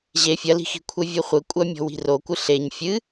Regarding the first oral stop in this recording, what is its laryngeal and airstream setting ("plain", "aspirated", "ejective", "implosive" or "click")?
aspirated